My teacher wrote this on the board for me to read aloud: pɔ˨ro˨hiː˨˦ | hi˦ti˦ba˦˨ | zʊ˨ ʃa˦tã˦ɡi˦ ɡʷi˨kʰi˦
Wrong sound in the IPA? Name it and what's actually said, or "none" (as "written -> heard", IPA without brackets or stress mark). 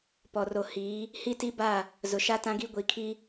none